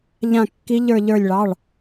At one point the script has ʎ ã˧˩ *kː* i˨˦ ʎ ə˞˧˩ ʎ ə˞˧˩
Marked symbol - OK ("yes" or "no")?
yes